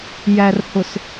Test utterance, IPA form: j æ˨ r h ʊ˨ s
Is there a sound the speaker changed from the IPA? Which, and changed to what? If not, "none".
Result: none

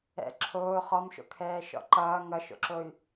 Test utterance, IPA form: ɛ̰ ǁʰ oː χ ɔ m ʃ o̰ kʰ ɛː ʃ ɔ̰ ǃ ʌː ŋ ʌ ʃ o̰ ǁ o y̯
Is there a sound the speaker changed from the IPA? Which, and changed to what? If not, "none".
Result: none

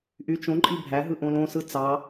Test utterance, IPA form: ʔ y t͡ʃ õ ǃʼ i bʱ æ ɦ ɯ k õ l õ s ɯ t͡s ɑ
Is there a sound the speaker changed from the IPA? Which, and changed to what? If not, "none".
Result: k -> ʔ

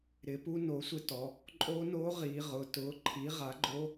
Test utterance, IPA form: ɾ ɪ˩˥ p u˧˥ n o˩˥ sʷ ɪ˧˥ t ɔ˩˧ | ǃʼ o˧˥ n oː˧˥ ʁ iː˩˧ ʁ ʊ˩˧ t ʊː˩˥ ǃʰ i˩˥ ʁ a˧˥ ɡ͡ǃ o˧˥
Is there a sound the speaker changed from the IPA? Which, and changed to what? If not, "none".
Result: a˧˥ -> a˩˥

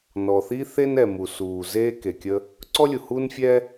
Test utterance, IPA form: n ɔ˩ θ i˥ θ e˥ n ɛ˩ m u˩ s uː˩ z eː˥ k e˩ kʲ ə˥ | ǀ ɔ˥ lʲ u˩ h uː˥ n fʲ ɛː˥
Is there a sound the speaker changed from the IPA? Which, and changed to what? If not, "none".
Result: none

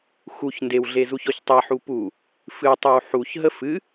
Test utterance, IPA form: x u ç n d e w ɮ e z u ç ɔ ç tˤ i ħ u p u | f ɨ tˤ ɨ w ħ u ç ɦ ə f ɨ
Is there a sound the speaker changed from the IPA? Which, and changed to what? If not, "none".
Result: none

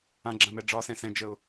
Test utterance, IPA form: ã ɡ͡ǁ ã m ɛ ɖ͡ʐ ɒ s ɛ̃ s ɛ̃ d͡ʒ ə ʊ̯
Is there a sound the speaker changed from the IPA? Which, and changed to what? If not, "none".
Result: none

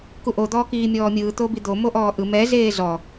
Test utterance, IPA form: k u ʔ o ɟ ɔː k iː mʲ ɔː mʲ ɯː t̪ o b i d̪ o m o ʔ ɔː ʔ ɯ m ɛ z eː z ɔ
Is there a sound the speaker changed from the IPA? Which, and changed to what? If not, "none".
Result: ɟ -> d̪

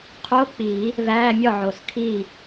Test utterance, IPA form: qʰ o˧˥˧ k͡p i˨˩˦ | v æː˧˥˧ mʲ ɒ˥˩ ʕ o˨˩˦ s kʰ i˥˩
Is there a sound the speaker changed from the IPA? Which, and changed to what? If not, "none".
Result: none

